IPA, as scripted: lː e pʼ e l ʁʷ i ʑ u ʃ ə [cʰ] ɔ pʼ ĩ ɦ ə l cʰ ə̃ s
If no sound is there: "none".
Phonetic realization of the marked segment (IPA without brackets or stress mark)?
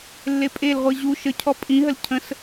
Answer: cʰ